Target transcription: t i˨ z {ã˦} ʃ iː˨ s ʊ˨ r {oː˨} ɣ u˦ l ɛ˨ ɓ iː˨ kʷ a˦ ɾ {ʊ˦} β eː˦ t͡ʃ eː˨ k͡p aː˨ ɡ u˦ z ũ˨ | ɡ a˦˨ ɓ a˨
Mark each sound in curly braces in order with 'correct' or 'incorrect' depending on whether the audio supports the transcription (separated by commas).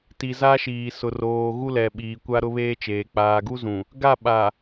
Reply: incorrect, correct, correct